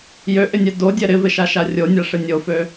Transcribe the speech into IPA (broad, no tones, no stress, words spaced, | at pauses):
jøʔɪnʲɛ dodʲɛ ɾɪvɪʃaʃa rʲonʲaʂɪ nʲofø